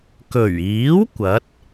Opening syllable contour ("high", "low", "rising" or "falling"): low